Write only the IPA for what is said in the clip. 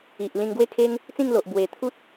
i˨ ʔ l ĩ˧ ŋ ɡ w e˥˧ kʰ e˦ ŋ | t͡s ĩ˥˧ ŋ l o˨ ʔ b w e˨˩ t̪ʰ u˦ t̚

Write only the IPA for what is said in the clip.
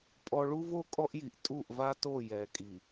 pʼ ɔ˦ ɭ u˦ v o˦ kʼ ɔ˦ ʔ j i˨ ʔ tʼ u˦˨ ʔ v a˦ t o˦˨ j ɛ˨ kʼ i˨

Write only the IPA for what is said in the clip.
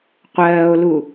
qʷ ɜː o̯ l u

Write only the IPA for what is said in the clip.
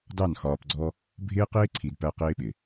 d ɑ˦˨ n x ɒː˨ p ɡ͡ǀ ɔ˦ | bʱ ɪː˦ q ɪː˦ ǀʰ i˨ d p æ˦ q ɪː˦ ɓ ɪ˨

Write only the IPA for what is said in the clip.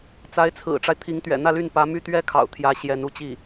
t͡s a˧˥ ɪ̯ t͡sʰ ɹ̩˨˩ ʈ͡ʂ a˦ ɪ̯ t̪ʰ i˧˥ ŋ t̪ ɥ ɛ̰˨˩ n̪ ä˥˧ l y˥˩ n p ä˧˥ m y˥ t̪ ɥ ɛ˥ kʰ ɑ̰˨˩ ʊ̯ t̪ʰ j ä˧˥ ɕ j ɛ˧˥ n u˥˧ t͡ɕ i˥˩

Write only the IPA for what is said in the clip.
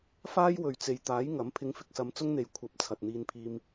f aː˥ j w ɵ˨ ɥ t͡s e˨ j t̪ aː˨˥ j ŋ ɐ˨˥ m pʰ ɪ˨˧ ŋ f ɪ˨ k̚ s ɐ˨˧ m t͡s ʊ˥ ŋ n̪ e˨ j kʷʰ ɐ˨˥ p̚ t͡sʰ ɐ˨ t̚ n̪ iː˧ n pʰ iː˧ m

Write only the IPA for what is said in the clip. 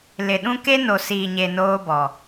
l ɪ˨ ɗ ũ˦ k e˦ n o˨ s iː˨ ɲ e˨ n oː˦ b ɔ˨

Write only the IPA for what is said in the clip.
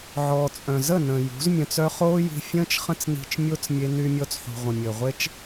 ʕ ɔː˨ t͡sʼ œ̃˨ z ə˦˨ n ə̃ː˨ j ṳ˨˦ z mʲ œ̃˧ t͡s œ˦ χ oː˦ j i̤˧ fʲ ə̃ː˦ t͡ʃ χ ə̃˦ t͡s n i̤˧ t͡ʃ mʲ o˦ t͡s mʲ e˧ n y˧ mʲ ɔ˧ t͡s ħ ṳ˨ ʁʷ ə̃˨ mʲ əː˨ ʁʷ e˦ t͡ʃ

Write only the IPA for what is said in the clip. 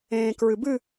ẽː k ɹ ɨ b ɨ

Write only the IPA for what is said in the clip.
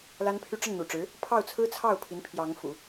l a˥ n pʰ y˥ ʈ͡ʂ ə˥˩ n n̪ ṵ˨˩ ʈ͡ʂ ɻ̩˧˥ | pʰ ɑ˥˩ ʊ̯ t͡sʰ ɹ̩˥ t͡sʰ ɑ˥˩ ʊ̯ pʰ i˧˥ n pʰ j ɑ˧˥ ŋ f ṵ˨˩˦

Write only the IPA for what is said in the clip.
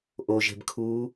ʔ o ʒ e̤ b kʰ uː

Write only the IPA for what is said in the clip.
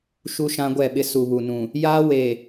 ʃ u˦ ʃ ã˦ ɡʷ ɛ˦˨ ɓ ɪ˦ s u˨ β u˨ n ũ˨ | j aː˦ w eː˨

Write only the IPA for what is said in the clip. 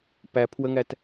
p æ pʰ w ə ŋ æ t

